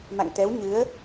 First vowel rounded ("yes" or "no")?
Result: no